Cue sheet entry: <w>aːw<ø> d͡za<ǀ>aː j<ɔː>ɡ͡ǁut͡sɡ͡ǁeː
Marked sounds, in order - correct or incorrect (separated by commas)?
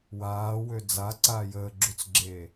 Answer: correct, correct, correct, incorrect